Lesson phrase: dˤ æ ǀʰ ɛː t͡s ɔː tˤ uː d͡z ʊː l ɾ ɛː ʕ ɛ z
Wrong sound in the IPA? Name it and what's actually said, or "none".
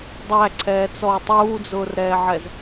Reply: l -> r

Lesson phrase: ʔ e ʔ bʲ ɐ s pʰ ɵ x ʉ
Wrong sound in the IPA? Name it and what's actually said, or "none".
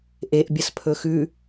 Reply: none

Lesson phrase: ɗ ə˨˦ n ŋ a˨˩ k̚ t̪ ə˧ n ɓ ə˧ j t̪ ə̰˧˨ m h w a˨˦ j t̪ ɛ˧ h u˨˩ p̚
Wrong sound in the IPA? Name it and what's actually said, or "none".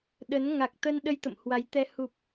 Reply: ɓ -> ɗ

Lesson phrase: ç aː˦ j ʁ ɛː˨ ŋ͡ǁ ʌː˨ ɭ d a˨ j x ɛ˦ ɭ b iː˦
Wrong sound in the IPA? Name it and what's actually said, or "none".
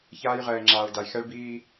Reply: ʌː˨ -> aː˨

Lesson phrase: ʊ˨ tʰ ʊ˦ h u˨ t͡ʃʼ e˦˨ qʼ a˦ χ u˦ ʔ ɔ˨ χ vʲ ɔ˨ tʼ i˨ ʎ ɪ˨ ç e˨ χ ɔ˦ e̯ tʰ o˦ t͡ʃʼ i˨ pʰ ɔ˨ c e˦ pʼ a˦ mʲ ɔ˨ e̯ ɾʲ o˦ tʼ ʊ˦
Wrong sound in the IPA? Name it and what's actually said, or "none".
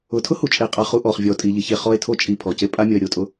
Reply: none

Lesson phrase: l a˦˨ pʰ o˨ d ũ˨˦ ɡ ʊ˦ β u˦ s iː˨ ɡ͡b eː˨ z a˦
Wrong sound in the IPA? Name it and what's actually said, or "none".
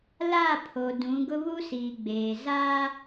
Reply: none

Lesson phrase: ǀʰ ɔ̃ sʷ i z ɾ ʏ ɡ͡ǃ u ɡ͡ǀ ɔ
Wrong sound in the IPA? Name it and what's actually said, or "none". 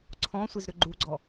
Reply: none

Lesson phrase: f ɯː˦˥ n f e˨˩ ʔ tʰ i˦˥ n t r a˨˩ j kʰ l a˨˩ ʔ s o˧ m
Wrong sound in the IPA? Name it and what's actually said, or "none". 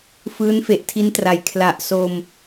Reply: none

